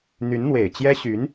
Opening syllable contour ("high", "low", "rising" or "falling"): rising